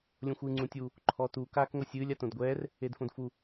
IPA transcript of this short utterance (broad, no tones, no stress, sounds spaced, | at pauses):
lʲ õ xʷ ɨː ŋ͡ǀ ũ tʲ u | ǃʰ ɔ t u k aː k ŋʷ ɛ sʲ ɨː lʲ a t õ d ɡʷ ɛː r | e d f õ d f u